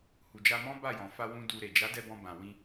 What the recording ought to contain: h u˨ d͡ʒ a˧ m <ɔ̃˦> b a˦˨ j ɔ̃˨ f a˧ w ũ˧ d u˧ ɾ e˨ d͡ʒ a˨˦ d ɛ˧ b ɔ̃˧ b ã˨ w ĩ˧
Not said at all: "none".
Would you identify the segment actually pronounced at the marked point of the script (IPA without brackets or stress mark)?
ɔ̃˦